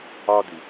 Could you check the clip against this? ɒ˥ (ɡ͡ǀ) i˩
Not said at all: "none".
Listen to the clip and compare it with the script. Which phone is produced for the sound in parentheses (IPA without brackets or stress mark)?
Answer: d